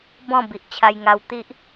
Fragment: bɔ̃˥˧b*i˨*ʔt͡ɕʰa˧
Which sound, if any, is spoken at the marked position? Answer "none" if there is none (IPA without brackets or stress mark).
i˨